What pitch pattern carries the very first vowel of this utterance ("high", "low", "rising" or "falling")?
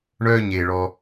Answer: high